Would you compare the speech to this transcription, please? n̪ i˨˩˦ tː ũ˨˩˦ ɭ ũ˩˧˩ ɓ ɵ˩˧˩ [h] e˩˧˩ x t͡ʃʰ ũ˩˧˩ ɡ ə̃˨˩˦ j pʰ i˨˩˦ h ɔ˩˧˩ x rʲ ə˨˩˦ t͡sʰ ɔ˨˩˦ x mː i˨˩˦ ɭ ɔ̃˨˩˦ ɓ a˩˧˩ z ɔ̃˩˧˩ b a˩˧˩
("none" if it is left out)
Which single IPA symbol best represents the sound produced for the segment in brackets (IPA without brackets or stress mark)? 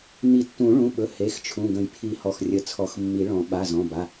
h